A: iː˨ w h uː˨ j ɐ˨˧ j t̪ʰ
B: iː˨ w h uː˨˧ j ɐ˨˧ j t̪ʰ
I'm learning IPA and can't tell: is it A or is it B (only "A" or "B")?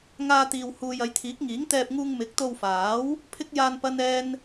A